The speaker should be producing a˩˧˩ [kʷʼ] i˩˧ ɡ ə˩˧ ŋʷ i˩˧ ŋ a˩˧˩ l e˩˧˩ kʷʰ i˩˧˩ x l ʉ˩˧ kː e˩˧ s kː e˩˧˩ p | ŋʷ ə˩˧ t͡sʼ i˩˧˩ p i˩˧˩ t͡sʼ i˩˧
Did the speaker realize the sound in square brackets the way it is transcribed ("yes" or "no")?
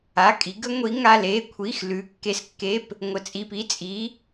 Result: no